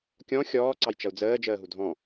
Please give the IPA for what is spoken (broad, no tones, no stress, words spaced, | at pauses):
kʲɔ̃ xʲɔː ǀɑjt͡ʃʌu̯d͡zəː d͡ʒəːɦudʱɔ̃